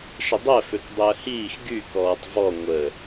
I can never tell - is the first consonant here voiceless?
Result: yes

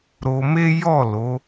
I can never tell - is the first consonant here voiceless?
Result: no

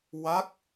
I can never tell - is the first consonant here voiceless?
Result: no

